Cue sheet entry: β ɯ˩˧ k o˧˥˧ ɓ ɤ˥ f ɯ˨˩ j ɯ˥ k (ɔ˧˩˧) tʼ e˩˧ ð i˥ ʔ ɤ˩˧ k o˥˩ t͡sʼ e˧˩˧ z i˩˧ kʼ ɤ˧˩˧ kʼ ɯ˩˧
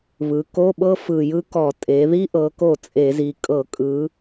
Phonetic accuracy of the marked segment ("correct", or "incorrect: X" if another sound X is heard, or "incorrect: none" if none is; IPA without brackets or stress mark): correct